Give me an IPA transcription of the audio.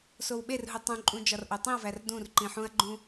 s o w ɓ e r ɦ u tˤ ũ ǃʼ ũ d͡ʒ ɒ r ʔ o tˤ ĩ ɐ̯ v æ r d ũ r ǃ ĩ ħ ũ ɐ̯ ɡ͡ǃ ũ

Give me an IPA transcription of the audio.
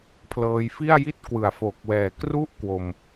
pʰ l ɤː˧ j f i˥˩ a̯ j i˥˩ t̚ k w ɯ˩˦ a̯ f o˨˩ k̚ w ɛː˨˩ k r u˥˩ ʔ k w o˧ m

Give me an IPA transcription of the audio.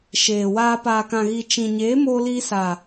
ʃ eː˨ w aː˧ p aː˨ k ã˨ ɣ i˨ t͡ʃ ĩ˨ ɲ eː˨˦ m oː˧ l iː˧ s a˨

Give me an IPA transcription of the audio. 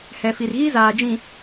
h ɛ˨ f i˨ r ɣ i˦ z aː˨ d͡ʒ ĩ˨

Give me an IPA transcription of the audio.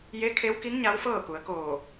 j e˧˥ kʰ e˧˥ w k i˧˥ ŋ ɲ a˧˥ w f ɤː˥˨ k u˩˧ ə̯ k oː˧˩

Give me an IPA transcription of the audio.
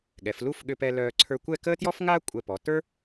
ɠ ɛ˩˧ f l u˥˧ f ɠ ʏ˧ p ɛ˧ l œː˧ ǀʰ ə˞˧ kʷ ɛ˥˧ k əː˥ t j ɔ˥ f ŋ aː˥ kʷʼ ɛ˧˩ p ɔ˩˧ t ə˞˥

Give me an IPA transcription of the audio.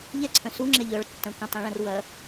ʎ ɛ ǀʰ œ̃ s u ŋ͡ǁ ɛ ʎ œ ɭ tː ɐ̃ kʷ ɛ̃ tˤ ĩ ɭ ɐ̃ r w ɐ

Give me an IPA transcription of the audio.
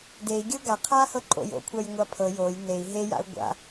d e i̯ ɡʲ ɤ ɡ a qʰ a h ɤ ǃʼ o̰ j o̰ kʷʰ a j ŋʷ a pʰ ɤ j o j n e i̯ ɦ e j a̰ u̯ ɡʷ a̰

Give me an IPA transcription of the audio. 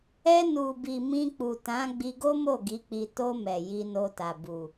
ɛ˧ n u˨ b i˨ m ĩ˧ k͡p u˨ t ã˨˦ ɡ͡b i˧ ɡ o˦ m o˦˨ ɡ i˨˦ k͡p i˧ t o˧ m ɛ˨ j i˧ n o˧ t a˨ b u˨

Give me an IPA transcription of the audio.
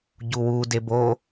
ɟ u w u d e b o

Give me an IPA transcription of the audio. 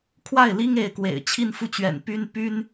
kʰ w a˥˩ ɪ̯ l i˥ ŋ e˧˥ ɪ̯ k w ḛ˨˩ ɪ̯ t͡ɕʰ i˥˧ n f u˥˩ t͡ɕ ɥ ɛ̰˨˩ n p y˥ n p y˥ n

